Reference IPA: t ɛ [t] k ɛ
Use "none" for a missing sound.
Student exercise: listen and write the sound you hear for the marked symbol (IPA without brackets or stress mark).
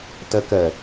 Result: none